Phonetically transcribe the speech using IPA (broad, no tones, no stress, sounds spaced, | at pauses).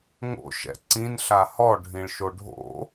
ŋ o̰ ʃ ɛ̰ ǀ ĩ n ɬ a h ɔ ɖʱ ĩ ɭ ʃ o ɖʱ o̰